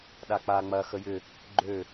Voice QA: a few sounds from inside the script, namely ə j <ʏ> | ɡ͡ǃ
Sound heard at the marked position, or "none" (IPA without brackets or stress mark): ʏ